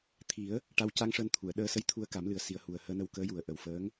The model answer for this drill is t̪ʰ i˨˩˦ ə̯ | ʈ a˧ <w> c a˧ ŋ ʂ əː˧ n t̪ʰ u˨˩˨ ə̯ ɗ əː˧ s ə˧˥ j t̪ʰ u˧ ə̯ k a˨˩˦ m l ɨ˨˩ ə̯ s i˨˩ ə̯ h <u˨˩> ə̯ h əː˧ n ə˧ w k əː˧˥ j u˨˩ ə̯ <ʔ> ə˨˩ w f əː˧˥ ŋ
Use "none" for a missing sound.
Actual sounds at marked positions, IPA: w, u˨˩, ʔ

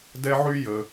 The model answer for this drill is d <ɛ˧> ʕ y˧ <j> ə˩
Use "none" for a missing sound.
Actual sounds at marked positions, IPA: ɛ˧, j

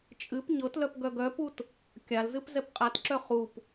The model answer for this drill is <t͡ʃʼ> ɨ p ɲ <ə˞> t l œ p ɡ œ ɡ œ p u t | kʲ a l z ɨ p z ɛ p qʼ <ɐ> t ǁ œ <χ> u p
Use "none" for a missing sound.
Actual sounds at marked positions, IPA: t͡ʃʼ, ɤ, a, χ

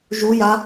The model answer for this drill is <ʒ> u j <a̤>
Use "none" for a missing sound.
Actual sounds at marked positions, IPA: ʒ, a

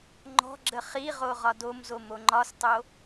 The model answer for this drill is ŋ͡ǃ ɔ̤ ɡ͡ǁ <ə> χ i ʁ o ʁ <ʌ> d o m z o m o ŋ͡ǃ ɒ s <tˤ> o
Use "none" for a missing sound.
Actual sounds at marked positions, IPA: ə, ɒ, tˤ

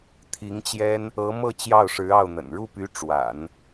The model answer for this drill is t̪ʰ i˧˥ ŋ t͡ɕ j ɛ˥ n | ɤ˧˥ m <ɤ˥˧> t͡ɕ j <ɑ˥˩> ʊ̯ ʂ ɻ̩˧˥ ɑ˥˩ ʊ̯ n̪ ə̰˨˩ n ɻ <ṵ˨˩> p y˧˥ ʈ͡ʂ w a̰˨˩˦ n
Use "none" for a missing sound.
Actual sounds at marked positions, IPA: ɤ˥˧, ɑ˥˩, u˥˩

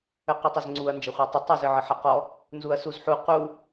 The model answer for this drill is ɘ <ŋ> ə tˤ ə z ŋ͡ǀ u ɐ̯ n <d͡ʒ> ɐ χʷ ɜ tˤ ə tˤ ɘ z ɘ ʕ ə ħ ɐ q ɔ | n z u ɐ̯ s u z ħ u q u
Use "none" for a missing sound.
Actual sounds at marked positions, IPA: q, d͡ʒ

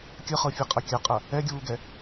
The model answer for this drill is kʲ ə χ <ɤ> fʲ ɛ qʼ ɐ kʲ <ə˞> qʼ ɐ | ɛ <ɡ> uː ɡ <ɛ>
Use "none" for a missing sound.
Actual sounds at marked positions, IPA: ɤ, ɐ, ɡʲ, ɛ

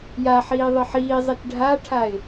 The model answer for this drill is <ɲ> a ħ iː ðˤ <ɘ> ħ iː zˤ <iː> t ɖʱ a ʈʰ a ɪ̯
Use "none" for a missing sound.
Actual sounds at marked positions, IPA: j, ɘ, i

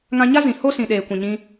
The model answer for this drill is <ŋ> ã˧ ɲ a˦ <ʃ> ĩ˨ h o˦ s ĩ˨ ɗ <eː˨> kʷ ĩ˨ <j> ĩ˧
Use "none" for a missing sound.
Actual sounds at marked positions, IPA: ŋ, z, eː˨, ɲ

